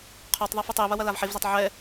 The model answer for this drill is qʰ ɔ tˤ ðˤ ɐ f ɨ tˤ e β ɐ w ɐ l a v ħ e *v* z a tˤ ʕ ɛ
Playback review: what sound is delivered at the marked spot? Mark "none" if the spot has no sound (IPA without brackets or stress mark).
v